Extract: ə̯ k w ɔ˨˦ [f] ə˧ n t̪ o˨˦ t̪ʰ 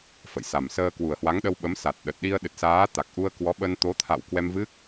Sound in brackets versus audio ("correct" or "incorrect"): incorrect